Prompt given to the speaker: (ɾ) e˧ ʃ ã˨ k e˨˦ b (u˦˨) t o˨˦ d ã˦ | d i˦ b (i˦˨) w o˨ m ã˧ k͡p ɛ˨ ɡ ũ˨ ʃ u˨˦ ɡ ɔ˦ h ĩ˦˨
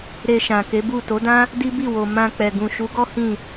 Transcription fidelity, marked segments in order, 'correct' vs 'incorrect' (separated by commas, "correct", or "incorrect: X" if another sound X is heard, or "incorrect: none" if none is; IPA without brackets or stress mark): correct, correct, correct